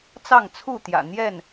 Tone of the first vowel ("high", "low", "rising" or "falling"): falling